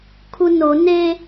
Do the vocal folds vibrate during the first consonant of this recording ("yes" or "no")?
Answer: no